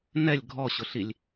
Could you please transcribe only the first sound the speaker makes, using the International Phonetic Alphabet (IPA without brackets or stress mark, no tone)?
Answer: n